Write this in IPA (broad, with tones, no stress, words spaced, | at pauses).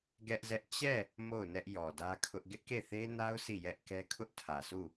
ɡɛ˦ʔzɛ˦ʔ t͡ɕɛ˦˨ | mo˦˨ʊ̯ nɛ˦ʔjɔ˨dä˦kʰʊ˦ʔ ɡɪ˦ʔke˦˨θe˦na˦ʊ̯ si˦˨jɛ˦ʔkɛ˦ kʰʊ˦ʔtʰä˨su˦˨